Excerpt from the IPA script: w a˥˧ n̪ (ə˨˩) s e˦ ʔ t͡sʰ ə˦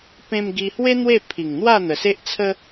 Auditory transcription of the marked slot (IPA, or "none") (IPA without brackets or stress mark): ə˨˩